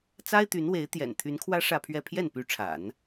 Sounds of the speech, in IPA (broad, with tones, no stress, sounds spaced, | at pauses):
t͡s a˥ ɪ̯ t̪ y˧˥ n w e˧˥ ɪ̯ t̪ j ɛ̰˨˩ n t̪ʰ y˧˥ n kʰ w ä˥ ʂ ä˥˧ pʰ ɥ ɛ˥˧ pʰ j ɛ˥˩ n p y˧˥ ʈ͡ʂʰ a̰˨˩˦ n